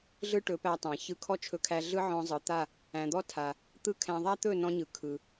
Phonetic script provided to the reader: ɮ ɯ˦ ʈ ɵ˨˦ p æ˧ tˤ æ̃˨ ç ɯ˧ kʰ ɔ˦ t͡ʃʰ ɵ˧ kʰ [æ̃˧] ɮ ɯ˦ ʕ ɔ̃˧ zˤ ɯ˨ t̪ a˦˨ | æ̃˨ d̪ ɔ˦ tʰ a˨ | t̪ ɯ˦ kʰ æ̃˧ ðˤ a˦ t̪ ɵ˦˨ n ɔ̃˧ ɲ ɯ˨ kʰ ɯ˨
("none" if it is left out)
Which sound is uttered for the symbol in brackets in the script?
æ˧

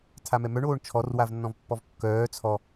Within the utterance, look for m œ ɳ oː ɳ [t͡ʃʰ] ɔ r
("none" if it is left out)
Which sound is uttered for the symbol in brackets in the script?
t͡ʃʰ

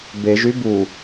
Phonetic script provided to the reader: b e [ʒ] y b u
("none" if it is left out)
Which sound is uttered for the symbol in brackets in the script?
ʒ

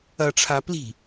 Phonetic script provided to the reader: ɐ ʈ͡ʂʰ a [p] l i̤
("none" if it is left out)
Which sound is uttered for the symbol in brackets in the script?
p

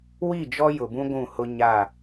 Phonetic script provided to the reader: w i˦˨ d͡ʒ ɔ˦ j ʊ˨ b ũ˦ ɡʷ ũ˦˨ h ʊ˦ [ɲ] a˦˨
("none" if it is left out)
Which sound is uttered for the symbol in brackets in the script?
ɲ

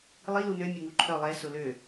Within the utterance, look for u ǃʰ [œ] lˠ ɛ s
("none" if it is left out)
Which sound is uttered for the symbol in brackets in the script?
œ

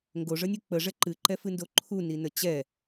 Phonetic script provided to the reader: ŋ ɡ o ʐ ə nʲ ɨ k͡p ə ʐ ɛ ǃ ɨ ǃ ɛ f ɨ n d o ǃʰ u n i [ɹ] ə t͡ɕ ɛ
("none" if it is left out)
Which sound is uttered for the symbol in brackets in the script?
n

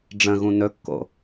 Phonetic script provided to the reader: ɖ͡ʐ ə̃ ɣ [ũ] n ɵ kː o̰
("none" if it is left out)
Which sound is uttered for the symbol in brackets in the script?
ũ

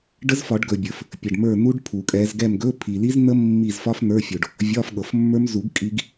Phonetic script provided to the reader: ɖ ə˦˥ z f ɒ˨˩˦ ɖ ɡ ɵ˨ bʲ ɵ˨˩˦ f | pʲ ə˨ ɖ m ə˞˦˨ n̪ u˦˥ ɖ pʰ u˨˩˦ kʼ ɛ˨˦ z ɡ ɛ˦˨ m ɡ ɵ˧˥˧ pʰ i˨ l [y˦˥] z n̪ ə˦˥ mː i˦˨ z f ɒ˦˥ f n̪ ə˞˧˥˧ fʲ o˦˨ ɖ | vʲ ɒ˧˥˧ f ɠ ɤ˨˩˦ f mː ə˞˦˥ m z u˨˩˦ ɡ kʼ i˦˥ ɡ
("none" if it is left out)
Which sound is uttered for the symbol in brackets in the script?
i˦˥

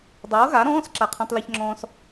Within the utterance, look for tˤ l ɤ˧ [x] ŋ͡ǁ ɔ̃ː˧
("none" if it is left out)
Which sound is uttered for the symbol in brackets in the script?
ç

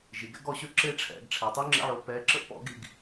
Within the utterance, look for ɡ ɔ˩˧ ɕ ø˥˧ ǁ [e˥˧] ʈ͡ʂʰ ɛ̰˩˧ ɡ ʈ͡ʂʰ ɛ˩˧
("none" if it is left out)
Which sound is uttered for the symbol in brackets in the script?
e˥˧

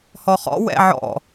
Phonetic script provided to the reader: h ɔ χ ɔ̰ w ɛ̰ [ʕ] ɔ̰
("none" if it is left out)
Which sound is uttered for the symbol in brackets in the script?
ʕ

